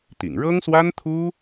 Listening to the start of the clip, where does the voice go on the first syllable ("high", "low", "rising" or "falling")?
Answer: low